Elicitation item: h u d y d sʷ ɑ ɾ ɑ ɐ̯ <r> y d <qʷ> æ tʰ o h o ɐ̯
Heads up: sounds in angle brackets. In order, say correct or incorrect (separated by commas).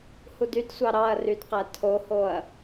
correct, incorrect